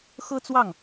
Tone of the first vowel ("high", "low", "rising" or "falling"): high